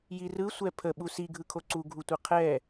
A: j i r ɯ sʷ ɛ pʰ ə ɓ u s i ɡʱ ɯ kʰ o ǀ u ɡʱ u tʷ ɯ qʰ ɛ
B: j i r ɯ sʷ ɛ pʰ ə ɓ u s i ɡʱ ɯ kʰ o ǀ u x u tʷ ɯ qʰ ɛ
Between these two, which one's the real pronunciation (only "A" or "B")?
A